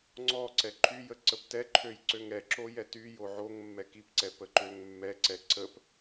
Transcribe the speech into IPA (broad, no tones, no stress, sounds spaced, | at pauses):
ŋ͡ǀ ɔ ǀ ɛ ǃʰ y j ə ǀ ə p t ɛ ǃʰ ø j ǀ ø ŋ ɛ ǁ o j ɛ t y j o ʕ o ŋ mː ɛ k i p ǀ ɛ p ə ǃ ø ŋ mː ɛ ǀ ɛ ǀ ə p